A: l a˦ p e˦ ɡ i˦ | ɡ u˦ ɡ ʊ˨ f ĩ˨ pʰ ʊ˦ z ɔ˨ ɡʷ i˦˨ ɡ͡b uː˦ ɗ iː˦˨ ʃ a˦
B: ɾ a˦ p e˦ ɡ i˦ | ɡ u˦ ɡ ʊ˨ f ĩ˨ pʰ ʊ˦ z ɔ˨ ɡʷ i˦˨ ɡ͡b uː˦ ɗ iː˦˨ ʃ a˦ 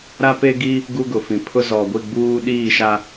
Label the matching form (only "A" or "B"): B